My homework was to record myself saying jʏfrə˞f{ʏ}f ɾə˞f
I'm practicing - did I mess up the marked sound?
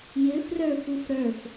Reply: yes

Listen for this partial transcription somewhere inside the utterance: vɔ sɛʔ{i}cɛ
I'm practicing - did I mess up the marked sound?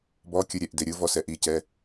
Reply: no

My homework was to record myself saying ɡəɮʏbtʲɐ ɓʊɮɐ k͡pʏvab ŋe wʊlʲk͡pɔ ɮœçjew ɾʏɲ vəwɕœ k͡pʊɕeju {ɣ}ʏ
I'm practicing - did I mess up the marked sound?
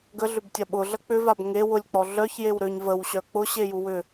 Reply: yes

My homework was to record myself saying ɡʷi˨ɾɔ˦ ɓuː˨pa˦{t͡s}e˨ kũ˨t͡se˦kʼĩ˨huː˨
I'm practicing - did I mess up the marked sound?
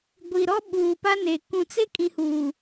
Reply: yes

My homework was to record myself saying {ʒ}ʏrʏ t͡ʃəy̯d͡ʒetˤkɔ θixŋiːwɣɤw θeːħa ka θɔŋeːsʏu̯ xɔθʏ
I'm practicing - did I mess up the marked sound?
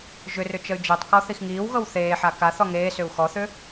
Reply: no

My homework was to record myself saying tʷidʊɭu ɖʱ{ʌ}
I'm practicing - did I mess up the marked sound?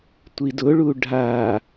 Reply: yes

